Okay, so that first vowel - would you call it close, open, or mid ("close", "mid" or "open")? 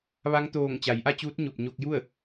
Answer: open